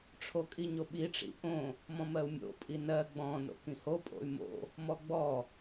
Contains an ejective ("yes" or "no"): yes